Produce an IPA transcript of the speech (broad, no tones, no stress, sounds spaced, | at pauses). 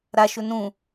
ɾ a ʃ ɵ n ũ